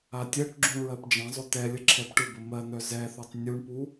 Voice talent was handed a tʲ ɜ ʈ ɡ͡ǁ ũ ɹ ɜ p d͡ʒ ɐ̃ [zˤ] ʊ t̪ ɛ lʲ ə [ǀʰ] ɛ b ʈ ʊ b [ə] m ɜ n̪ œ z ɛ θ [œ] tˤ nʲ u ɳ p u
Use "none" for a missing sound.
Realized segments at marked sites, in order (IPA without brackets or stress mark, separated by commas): zˤ, ǁʰ, ə, œ